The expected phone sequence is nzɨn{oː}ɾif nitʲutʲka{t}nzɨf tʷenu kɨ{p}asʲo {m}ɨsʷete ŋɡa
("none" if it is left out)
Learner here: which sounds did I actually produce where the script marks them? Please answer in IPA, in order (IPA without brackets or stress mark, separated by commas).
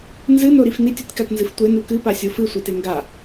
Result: o, t, p, f